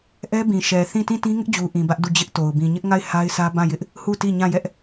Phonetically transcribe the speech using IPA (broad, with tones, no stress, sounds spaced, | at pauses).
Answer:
ʔ ɛ˦ b ĩ˨ ʃ ɛ˨ θ ĩ˦˨ t ĩ˦˨ t ĩ˦ ŋ ɪ˦ ʔ d͡ʑ u˨ ʔ ĩ˨ b ä˦ ʔ d u˦˨ d͡ʑ ɪ˦ ʔ t o˨ ʊ̯ b ĩ˨ ɲ ɪ˦ ʔ ŋ a˦˨ ɪ̯ h a˦ ɪ̯ sʰ ä˦ b ã˦˨ j ɪ˦ ʔ | h u˦˨ t i˦˨ ɲ ã˦˨ j ɛ˦ ʔ